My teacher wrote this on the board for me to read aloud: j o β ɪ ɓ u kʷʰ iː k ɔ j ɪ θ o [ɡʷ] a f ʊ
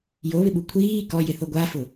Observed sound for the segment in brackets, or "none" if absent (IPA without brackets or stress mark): ɡʷ